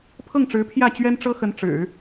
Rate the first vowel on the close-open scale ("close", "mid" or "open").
mid